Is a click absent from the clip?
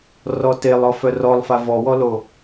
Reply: yes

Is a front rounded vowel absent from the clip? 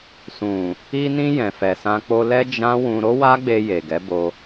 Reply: yes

